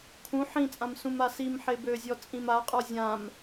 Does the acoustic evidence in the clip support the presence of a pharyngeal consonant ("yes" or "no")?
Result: yes